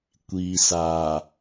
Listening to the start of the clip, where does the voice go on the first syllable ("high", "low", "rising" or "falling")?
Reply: low